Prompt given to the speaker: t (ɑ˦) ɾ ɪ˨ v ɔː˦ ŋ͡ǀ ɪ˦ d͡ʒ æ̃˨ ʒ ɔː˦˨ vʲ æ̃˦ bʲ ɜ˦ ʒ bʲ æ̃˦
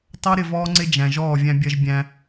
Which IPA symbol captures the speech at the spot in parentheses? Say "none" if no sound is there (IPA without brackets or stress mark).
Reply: ɑ˦